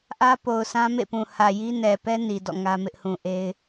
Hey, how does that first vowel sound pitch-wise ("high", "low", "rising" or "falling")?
high